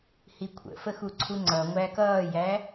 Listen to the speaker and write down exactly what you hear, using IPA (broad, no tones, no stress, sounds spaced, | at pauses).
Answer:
h i kʷʰ ə̰ f ə x u ǀʰ u ŋ͡ǀ ʌ ŋʷ æ k ʌː j æ